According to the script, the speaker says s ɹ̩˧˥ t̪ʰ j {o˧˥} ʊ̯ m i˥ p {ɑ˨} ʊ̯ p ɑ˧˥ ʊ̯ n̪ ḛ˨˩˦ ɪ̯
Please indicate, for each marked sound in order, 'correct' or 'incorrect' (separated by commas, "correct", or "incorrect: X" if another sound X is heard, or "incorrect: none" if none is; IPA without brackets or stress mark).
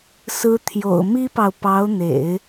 incorrect: o̰˨˩, correct